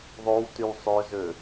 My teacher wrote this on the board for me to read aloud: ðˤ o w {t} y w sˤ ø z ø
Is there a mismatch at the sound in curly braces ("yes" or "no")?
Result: no